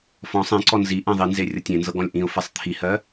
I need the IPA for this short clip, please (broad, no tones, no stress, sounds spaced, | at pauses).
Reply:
f ɔ̃ sˤ ẽ ǀ ɔ n z i ʔ ɛ̃ ðˤ i n z e rʲ ɤ tʲ ẽ n z ɤ ɡ ɔ̃ lʲ ʔ ĩ ʊ̯ f ɛ sˤ t̪ʰ i h ɜ